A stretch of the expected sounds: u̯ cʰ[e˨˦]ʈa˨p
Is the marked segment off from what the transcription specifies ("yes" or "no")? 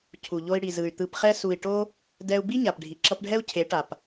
no